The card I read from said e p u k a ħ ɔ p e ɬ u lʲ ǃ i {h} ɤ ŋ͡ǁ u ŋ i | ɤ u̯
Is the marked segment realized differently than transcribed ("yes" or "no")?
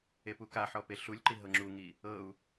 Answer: yes